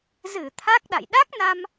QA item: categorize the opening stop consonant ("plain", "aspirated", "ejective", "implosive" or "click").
aspirated